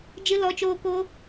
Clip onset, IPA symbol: d͡ʒ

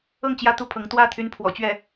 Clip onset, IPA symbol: ɤ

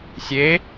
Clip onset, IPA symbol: sʲ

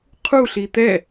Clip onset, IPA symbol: qʰ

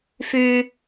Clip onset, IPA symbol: f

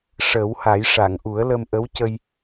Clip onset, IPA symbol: ʂ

